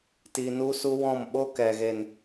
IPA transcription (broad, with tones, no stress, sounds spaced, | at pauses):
t i˧ n u˦ s u˦ w ɔ̃˦˨ m ɓ o˦ k ɛ˨ ɣ e˨ n